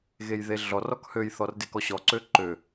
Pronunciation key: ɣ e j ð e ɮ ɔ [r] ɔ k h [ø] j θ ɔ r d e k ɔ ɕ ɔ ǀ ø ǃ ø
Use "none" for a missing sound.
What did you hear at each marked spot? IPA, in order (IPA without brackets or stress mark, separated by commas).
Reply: r, ø